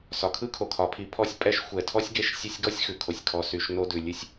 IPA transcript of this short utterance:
s ɒ˩ kʰ ɯ˥ kʰ o˩ kʰ ɒ˩ pʰ i˨ pʰ ɔ˦ sʲ pʼ ɛ˦ ʃ xʷ ɛ˨ tʰ ɔ˥ sʲ ɡ e˦ ʃ sʲ ɛ˦ sʲ ɡ ɔ˥ sʲ x ʉ˩ kʰ o˩ sʲ kʰ ɔ˨ s y˨ ʃ n o˦ d ʉ˩ lʲ ʉ˦ sʲ

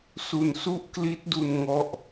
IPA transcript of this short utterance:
s u˧ n s u˥˩ ʔ k l i˦˥ t̚ d u˧ n ŋ ɔ˥˩ ʔ

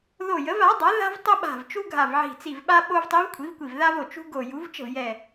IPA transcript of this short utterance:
ð o˧˩ j ə˩˥ v a˩˥ dˤ a˩˥ ð a̤˥ v tˤ ə˥ ɓ a̤˧˩ v t͡ʃ u˥ ɡʱ a˧˩ v ʕ i̤˧˩ t͡s i˧˩ v ɓ a˥ ɓ o˥ v tˤ i˧˥ v kʷʰ i˩˥ v kʷ i˧˩ v ð a˥ v o˧˩ t͡ʃ ṳ˥ ɡ o˧˩ j u˩˥ v t͡ʃ ə̤˥˩ v j ɛ˧˩

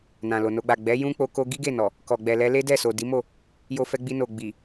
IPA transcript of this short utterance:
n ã˨ l o˨ n o˧ ɡ͡b a˨ ɡ͡b ɛ˨˦ j ũ˦ k͡p o˧ k o˦ ɡ i˦ ɡ e˦˨ n ɔ˨ | k ɔ˨ ɡ͡b ɛ˨ l ɛ˧ l e˦ d ɛ˦˨ s o˨ d i˨˦ m o˦˨ | j o˧ f ɛ˧ ɡ͡b i˧ n o˨ ɡ͡b i˨

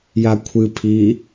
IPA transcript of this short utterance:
j a kʷʰ ɨ pʰ i

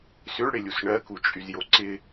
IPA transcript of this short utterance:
s ʏ ɭ ɽ ɪ lʲ u s ɳ ɜ k u t͡ʃʼ y z j o ǀ ɪ

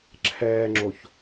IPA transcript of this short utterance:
ǁʰ ɛː ŋ͡ǁ o ç

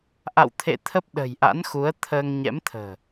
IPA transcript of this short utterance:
ʔ a̰˧˨ w t̪ʰ ḛ˧˨ t̪ʰ ə˦˥ p̚ ɗ ə̤˨˩ j ʔ a̰˧˥ n x u˨˦ ə̯ t̪ʰ əː˧ ŋ ɲ ɛ̰˧˥ m t̪ʰ ə̤ː˨˩

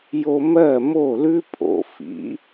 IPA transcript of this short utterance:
j o˧ m ɜ˦˨ m o˦˨ l ʉ˦ pʼ o̰˨ f ḭ˨˦

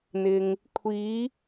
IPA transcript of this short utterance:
n̪ ɪ˨ ŋ | kʷʰ iː˨˧

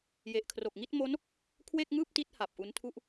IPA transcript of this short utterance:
j e˨˩ ʔ kʰ r o˨˩ k̚ ŋ i˥˩ t̚ m o˦˥ n | kʰ w e˥˩ k̚ ŋ ɯː˥˩ p̚ t i˦˥ t̚ h a˨˩ p̚ ʔ u˦˥ n tʰ u˥˩ ʔ

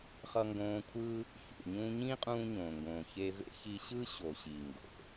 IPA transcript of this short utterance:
χ ʌ˧ ŋ ɡ õː˧ kʷʰ ɯː˦ | ç ṵ˨ ɲ ũː˧ ɲ ĩː˦ qʼ ũː˧ ɲ õː˨ ŋ ɡ õː˨ ç e˧ v ḛ˦ ç i˧ ɕ ɯ˦ ɕ o˨ ɕ i˨ ŋ ɡ o̰˨

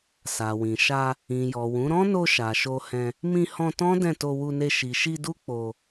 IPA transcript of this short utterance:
s a˨ w ĩ˨ ʃ a˧ | ĩ˨ j ɔ˨ w ũ˨˦ ɾ ɔ̃˦ n o˧ ʃ a˨ ʃ o˧ h ɛ̃˧ | m ĩ˧ h ɔ̃˧ t ɔ̃˦ d ɛ̃˦˨ t o˧ w u˧ n e˧ ʃ i˨ ʃ i˧ d u˦ k͡p o˧

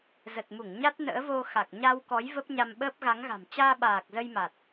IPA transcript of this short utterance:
z ə˨˩ t̚ m u˧˩ ŋ ɲ a˦˥ t̚ n ə̰ː˧˥ v o˧ x a˨˩ k̚ ɲ a˧ w k ɔ˨˦ j v ə˦˥ p̚ ɲ a˧ m ɓ əː˦˥ p̚ ɣ a˨˦ ŋ ɣ a̤˨˩ m t͡ɕ aː˧ ɓ aː˨˩ k̚ z ə˧ j m a˨˩ t̚

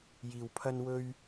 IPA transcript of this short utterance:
j iː˧ w pʰ ɐ˥ n w ɵ˥ ɥ

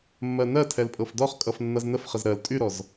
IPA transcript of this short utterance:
mː ɜ n ɜ tʰ ɛ l pʼ ɤ f d ɔ χ kʼ ʌ f nː ʌ z n ə f χ ə z ɾ ɜ l tʼ y ɾ ɔ z

